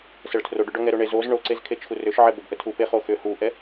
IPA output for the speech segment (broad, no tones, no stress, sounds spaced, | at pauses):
s ə ɭ tʰ r o ɖ ʏ ɖ ɔ ŋ ɛ ɾ o ɳ e z o z ɳ o ǀ e z kʰ e t͡ʃʰ u r ʏ ʃ ʕ ɛ b ə b ʔ ə tʰ u p e χ o x ʏ h u ʔ ɛ